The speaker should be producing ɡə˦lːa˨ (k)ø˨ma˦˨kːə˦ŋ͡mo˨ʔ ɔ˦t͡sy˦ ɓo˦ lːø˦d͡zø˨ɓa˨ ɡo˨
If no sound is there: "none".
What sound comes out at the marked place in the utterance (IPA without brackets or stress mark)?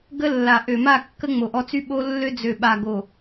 ʔ